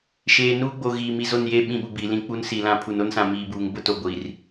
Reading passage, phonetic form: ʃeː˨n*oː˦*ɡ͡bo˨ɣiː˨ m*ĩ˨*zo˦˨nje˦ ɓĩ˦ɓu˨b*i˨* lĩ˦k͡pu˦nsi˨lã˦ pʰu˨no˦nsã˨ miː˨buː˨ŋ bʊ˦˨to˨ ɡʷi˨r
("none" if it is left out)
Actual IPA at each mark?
uː˦, i˨, i˨

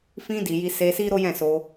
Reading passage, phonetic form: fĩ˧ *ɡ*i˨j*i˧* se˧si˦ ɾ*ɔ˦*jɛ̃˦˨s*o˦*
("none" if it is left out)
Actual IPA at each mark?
d, i˧, o˦, o˧

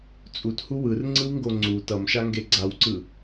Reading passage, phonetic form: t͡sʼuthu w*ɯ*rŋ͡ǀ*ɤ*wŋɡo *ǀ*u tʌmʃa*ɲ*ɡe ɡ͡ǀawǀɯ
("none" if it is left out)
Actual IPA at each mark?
ɯ, ɯ, ŋ͡ǀ, ŋ

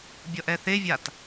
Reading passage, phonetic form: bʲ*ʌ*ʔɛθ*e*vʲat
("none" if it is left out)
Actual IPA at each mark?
ʌ, e

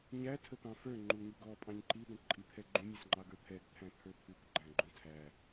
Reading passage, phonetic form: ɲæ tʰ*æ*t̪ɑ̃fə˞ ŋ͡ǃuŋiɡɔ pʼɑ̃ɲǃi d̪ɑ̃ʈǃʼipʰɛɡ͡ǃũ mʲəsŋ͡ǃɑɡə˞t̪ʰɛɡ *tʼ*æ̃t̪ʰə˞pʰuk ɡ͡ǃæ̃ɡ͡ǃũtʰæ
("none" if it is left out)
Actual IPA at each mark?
ə, t̪ʰ

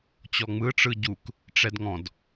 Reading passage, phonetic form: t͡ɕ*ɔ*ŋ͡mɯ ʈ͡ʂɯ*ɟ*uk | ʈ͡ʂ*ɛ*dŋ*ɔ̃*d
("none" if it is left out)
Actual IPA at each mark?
ɔ, ɟ, ɛ, ɔ̃

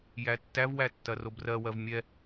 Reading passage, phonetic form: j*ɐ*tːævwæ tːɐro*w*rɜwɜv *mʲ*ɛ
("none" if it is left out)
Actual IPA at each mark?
æ, b, mʲ

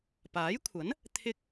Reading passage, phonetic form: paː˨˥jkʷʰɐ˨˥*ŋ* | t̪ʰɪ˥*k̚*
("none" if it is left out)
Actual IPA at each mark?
n, k̚

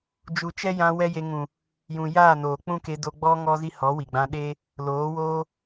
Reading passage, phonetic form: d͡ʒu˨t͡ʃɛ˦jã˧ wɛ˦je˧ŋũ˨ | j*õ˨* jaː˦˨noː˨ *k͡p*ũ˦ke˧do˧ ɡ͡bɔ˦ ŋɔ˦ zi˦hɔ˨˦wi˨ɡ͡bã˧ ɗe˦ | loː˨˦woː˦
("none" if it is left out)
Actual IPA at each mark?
ũ˨, k͡p

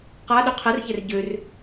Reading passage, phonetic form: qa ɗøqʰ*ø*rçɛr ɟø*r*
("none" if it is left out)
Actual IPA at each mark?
ɛ, r

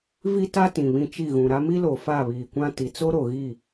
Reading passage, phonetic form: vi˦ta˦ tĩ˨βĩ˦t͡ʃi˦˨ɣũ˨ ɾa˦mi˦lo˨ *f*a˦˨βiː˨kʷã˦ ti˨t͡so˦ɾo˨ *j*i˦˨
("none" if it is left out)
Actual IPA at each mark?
f, ɣ

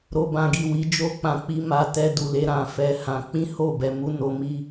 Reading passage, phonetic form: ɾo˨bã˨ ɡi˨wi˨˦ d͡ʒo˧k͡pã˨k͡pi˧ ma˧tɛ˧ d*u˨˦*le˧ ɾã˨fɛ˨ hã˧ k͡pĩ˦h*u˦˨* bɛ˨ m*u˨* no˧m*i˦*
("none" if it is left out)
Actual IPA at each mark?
u˨, o˦˨, u˧, i˦

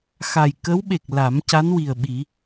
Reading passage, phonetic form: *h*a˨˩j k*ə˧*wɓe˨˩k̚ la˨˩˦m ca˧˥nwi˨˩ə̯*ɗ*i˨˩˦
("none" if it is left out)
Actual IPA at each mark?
x, ə˧˥, ɓ

